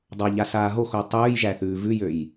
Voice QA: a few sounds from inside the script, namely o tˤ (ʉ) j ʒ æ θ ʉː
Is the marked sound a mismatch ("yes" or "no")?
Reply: yes